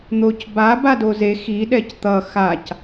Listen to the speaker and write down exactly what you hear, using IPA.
n̪ o c b a b a d o z e x i ɗ ɛ c t̪ ʌ x a c

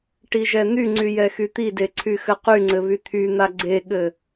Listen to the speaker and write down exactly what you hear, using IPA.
ʈ i ʒ ɛ n̪ y ŋ͡ǀ y j ɛ x y t̪ i d e ǀʰ y x ɘ q y ŋ͡ǀ ɘ β y t̪ʰ y n̪ a ɡ͡ǀ e ɠ ɘ

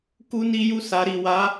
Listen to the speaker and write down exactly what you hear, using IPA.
k u˧ n i˧ j u˧ s a˨ ɾ i˨ w a˨˦

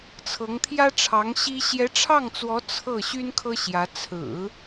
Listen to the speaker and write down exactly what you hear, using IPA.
t͡sʰ ɤ˧˥ ŋ t̪ʰ j ä˥ ʈ͡ʂʰ ɑ˧˥ ŋ ɕ i˥ ɕ j ɛ˧˥ ʈ͡ʂʰ ɑ˥˩ ŋ t͡s w ɔ˧˥ t͡sʰ ɤ˥˩ ɕ y˥ n kʰ ɤ˥ ɕ j ä˧˥ t͡sʰ ɹ̩˨˩˦

